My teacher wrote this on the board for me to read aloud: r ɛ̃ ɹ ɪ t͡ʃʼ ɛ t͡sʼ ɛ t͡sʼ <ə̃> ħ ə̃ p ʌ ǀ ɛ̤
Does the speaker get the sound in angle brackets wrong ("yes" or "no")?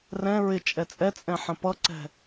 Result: yes